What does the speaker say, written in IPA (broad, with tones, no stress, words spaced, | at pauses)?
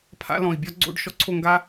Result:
pʰa̰˥ lɔ̃˧˩i̯bʲɔ˥ ɡ͡ǀo̰˥˧ɖ ʃɔ˥ǀʰo˥˧ŋɡa˥